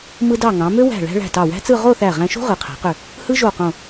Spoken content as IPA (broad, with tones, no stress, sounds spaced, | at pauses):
m ɯ˧ d ɑ˧˩ ŋ ɑ̃˩˧ m ø˥ w æ̤˧˩ ɭ æ̤˥ ɭ æ̤˧˩ t ɑ˧˩ w æ̤˥ t͡s ɯ˥˧ ʁ o˥˧ θ æ˧˩ ʁ æ̃˧ ʃ o̤˥ ʁ ɯ˩˧ qʰ æ̤˩˧ q ø˧˩ | h ɯ˥ ʒ o˧˩ q õ˧˩